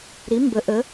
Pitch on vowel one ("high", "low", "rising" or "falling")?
rising